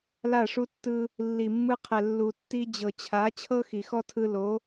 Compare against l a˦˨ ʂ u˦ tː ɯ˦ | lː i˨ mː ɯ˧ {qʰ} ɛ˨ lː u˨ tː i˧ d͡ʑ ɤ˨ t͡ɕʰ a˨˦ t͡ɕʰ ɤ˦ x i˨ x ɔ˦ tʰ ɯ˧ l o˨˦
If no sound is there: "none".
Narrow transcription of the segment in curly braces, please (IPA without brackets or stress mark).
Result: qʰ